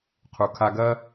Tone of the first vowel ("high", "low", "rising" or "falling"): low